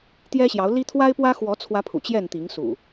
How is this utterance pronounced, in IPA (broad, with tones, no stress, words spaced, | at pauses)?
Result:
t̪jɛ˦ɕjɑ˨˦ʊ̯ li˦ t̪ʰwa˦ɪ̯pwä˦xwɔ˨˦t͡sʰwä˨˦ pʰṵ˨˩t͡ɕjɛ˥˨nt̪i˨˦ŋsṵ˨˩